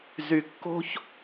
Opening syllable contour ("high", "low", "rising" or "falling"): rising